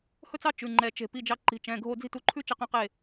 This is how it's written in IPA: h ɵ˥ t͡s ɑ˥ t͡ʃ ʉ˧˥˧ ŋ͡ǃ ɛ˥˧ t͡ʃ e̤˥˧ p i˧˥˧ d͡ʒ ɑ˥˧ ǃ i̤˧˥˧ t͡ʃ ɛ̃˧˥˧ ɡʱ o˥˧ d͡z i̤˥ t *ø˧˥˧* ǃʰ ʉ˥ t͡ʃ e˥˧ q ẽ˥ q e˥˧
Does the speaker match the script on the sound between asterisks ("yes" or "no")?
no